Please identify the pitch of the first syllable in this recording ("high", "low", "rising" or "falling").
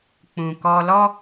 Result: low